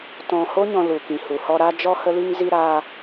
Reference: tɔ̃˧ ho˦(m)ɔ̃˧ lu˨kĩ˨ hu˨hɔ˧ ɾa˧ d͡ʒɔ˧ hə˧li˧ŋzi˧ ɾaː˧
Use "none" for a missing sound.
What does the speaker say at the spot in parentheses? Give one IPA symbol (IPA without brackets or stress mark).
ɲ